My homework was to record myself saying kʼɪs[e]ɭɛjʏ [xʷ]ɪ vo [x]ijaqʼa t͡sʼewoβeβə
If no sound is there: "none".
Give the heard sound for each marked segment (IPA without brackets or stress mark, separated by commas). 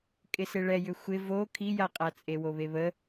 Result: e, xʷ, kʰ